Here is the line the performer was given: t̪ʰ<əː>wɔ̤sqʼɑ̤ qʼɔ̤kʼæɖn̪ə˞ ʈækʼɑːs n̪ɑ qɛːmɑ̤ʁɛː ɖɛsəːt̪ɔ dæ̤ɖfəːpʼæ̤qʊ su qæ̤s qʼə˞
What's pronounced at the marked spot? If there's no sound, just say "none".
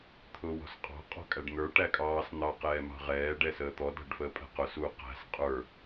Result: ʊː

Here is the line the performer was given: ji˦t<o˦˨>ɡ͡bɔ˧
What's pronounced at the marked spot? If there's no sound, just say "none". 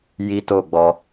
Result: o˦˨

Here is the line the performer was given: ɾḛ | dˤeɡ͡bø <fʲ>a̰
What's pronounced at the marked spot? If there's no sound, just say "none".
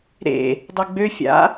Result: fʲ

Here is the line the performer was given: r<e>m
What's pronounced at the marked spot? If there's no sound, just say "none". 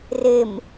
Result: e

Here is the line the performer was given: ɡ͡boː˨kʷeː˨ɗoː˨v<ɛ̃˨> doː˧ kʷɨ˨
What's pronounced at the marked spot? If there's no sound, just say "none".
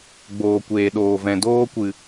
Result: ɛ̃˨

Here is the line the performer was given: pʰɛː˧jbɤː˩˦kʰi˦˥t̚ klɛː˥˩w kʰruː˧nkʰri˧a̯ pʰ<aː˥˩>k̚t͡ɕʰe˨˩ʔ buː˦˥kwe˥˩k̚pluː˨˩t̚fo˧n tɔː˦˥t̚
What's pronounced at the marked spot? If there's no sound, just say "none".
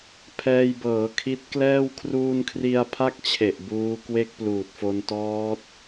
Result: a˥˩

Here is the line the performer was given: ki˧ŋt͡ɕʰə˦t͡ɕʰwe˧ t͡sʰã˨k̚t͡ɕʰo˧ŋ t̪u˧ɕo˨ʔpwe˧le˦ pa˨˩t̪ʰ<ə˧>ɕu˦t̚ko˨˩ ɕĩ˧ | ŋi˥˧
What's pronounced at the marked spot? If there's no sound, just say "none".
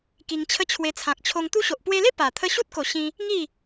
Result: ə˧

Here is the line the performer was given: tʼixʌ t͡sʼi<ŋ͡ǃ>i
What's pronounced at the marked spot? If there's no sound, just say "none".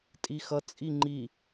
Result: ŋ͡ǃ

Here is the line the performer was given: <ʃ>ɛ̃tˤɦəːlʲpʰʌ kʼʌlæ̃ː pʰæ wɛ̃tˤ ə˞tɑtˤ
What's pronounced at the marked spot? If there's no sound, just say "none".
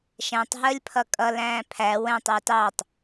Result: ʃ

